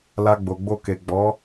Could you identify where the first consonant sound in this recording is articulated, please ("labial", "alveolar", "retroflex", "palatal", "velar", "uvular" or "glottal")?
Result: alveolar